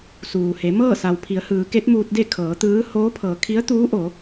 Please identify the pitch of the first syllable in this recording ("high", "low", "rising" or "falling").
low